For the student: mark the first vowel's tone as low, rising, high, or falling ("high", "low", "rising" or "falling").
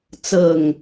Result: falling